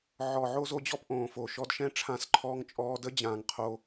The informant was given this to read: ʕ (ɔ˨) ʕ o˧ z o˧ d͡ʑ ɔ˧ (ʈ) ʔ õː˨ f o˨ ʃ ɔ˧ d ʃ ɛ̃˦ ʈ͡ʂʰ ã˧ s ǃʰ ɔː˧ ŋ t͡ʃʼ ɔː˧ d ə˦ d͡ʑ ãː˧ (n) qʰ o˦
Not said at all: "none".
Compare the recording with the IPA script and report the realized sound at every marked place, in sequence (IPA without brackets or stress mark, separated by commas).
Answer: ɔ˨, p, ŋ